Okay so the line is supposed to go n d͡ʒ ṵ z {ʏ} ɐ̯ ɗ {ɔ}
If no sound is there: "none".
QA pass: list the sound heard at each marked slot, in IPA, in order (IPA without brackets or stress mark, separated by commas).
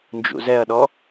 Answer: ɛ, ɔ